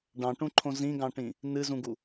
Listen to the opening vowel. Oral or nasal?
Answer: nasal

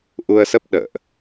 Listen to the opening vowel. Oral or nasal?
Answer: oral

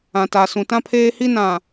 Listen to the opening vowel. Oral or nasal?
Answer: nasal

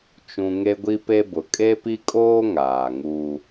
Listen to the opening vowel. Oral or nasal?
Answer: nasal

